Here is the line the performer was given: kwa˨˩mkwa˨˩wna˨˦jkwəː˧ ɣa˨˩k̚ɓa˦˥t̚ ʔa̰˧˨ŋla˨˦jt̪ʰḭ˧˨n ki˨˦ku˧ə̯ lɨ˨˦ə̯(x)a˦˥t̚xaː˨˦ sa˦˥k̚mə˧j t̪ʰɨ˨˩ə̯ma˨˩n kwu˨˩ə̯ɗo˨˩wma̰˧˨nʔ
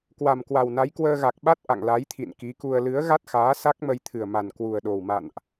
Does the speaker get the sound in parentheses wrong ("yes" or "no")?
yes